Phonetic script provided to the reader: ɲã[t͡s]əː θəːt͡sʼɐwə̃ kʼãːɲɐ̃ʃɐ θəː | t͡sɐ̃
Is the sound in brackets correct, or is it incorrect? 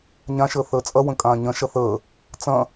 incorrect